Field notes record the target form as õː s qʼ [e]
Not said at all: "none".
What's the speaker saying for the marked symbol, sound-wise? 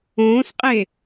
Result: e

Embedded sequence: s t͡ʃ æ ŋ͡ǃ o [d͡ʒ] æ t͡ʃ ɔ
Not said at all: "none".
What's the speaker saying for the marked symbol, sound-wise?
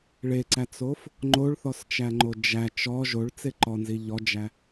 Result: d͡ʒ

